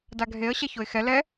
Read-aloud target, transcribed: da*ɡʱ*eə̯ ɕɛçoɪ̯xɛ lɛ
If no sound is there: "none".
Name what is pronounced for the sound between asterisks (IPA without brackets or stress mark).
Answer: ɡʱ